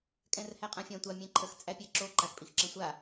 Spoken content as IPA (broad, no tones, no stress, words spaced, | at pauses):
kʼɛ̃rhæqʼãfʲã tʷa mʲɛ̃ǃʰəx t͡sʼæpʲæǁo ǃaxpʼixǁɛ̃sʷa